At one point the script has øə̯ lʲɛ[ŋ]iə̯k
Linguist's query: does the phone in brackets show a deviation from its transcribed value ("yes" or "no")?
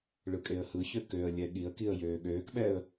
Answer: yes